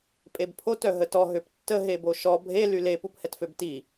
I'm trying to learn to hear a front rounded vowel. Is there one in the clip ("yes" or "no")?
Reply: yes